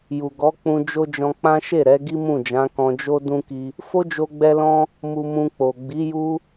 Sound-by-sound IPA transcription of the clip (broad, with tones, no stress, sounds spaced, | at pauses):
j u˨ ɡ ɔ˨˦ k͡p ũ˧ d͡ʒ o˦ d͡ʒ ɔ̃˧ k͡p ã˦ ʃ e˦˨ ɾ ɛ˨˦ ɡ i˦ m ũ˦˨ d͡ʒ ã˨˦ k ɔ̃˧ d͡ʒ o˦ d ũ˦ k i˧ | f o˦ d͡ʒ o˧ ɡ͡b ɛ˧ l ɔ̃˧ | m u˧ m ũ˧ k͡p o˨ ɡ͡b i˨˦ j u˦